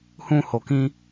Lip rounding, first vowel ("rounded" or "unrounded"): rounded